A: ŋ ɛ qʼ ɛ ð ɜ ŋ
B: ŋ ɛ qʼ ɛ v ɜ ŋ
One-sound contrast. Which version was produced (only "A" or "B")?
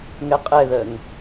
A